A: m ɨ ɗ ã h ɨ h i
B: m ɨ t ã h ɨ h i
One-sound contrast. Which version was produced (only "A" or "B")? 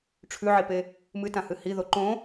B